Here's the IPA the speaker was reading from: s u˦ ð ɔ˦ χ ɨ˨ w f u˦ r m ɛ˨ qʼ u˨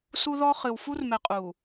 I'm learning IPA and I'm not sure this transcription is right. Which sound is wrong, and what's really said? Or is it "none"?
none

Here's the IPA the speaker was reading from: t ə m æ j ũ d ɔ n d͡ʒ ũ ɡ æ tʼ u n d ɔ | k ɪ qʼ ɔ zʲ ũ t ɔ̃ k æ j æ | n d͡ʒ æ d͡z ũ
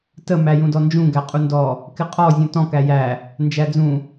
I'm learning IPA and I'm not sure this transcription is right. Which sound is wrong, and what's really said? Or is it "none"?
tʼ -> qʼ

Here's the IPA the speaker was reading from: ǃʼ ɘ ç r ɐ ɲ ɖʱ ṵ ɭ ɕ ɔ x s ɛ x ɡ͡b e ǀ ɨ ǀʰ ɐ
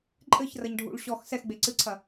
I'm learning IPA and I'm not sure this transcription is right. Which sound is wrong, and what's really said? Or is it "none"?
none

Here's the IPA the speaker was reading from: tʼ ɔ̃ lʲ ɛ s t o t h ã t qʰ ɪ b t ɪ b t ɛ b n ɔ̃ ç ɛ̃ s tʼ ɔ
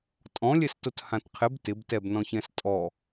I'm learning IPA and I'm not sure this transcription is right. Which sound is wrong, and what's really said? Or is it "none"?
none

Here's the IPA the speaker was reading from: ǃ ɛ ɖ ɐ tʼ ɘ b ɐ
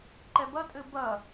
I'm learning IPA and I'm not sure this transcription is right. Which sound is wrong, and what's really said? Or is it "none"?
ɖ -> b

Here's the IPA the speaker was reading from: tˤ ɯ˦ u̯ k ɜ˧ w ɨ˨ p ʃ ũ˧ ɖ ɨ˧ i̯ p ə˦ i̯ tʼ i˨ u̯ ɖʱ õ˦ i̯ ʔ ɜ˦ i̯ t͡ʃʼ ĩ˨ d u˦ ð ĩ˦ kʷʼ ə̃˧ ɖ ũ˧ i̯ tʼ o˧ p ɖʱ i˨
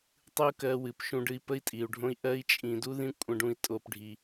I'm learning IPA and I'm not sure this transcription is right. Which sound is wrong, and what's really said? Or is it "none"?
none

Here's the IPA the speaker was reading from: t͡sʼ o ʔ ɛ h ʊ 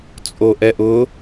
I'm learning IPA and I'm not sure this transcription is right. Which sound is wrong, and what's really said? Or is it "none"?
h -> ʔ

